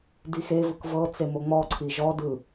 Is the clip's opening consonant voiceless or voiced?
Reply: voiced